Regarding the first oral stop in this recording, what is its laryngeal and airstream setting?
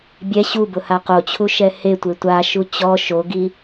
plain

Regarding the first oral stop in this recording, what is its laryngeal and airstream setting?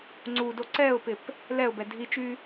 click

